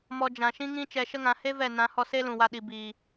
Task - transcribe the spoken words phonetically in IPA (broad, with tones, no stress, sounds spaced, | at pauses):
m ɔ˧ d͡ʒ ã˨ ʃ ĩ˦ ŋ ĩ˦ t͡ʃ ɛ˧ ʃ ə˦ ŋ ã˧ h e˦ v ɛ˦˨ n ã˨˦ h ɔ˧ s e˦ l ũ˨ w a˧ ɗ i˨ b iː˨